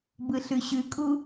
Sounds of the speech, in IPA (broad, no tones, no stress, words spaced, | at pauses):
bɯɬʉɕʉkʼu